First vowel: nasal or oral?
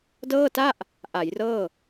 oral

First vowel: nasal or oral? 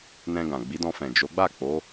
nasal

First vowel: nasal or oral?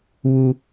oral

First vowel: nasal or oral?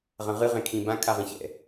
nasal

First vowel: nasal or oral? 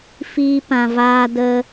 oral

